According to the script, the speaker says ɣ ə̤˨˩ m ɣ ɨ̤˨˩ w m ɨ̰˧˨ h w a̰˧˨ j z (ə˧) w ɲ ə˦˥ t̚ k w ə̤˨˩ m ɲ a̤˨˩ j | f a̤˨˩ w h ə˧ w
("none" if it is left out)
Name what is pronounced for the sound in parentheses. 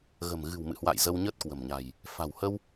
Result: ə˧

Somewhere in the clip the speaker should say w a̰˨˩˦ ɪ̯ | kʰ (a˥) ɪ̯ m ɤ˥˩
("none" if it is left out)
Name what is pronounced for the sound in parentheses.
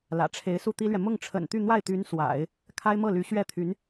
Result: a˥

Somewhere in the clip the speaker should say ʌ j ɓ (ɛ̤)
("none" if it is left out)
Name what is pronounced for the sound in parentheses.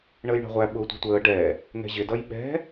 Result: ɛ̤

